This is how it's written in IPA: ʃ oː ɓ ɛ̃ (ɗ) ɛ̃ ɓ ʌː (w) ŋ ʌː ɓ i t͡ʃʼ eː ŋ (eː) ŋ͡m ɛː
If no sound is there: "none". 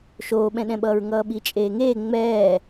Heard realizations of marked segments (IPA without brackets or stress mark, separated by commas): ɗ, ɹ, eː